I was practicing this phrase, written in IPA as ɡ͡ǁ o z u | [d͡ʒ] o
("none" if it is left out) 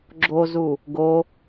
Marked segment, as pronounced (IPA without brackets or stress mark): ɡ